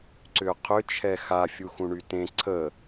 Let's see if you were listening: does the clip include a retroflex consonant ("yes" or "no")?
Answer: yes